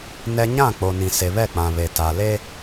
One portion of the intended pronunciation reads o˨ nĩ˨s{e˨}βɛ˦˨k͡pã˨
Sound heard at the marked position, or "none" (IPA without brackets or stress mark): e˨